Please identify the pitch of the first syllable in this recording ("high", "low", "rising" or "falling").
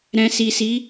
low